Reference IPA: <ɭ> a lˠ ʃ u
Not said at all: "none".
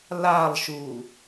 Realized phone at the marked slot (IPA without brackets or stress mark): l